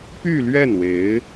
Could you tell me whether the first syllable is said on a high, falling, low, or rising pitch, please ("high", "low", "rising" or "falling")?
falling